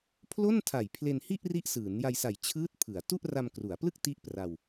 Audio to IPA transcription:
pʰ l o˥˩ n tʰ a˨˩ j pʰ l e˧ n h i˥˩ ʔ r i˦˥ ʔ s ɯː˩˦ n j a˧ j s a˨˩ j t͡ɕʰ ɯː˦˥ t̚ pʰ ɯ˩˦ a̯ t u˥˩ ʔ r a˧ m k r u˩˦ a̯ p l ɯ˥˩ k̚ t i˥˩ ʔ p r a˧ w

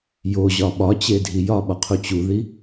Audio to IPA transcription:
j o ʑ ɒ ɓ ɒ t͡ɕ e dʱ i j ɒ ɓ ɒ qʰ u t͡ɕ u ð i

